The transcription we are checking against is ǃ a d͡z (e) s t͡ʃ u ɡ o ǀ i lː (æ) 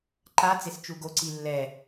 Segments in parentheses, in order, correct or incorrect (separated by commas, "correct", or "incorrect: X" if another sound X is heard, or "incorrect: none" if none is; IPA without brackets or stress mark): correct, incorrect: ɛ